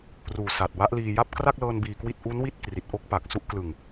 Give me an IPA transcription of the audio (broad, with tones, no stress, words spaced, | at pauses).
ruː˨˩ sa˨˩t̚wa˦˥ʔliː˧ja˥˩p̚ kra˥˩k̚lɤː˧n biː˧kwi˥˩t̚ ʔu˦˥nwi˥˩t̚ kri˨˩t̚ʔo˥˩k̚ pa˨˩k̚su˥˩ʔ klɯ˨˩ŋ